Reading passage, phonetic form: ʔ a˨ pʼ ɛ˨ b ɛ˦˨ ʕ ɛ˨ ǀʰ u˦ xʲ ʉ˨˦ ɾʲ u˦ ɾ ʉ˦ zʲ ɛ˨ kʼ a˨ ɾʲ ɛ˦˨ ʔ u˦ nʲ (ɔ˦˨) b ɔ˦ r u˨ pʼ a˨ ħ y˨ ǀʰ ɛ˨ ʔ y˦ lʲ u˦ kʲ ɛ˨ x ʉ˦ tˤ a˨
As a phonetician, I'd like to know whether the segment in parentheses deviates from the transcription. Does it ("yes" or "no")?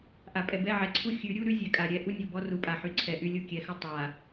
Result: yes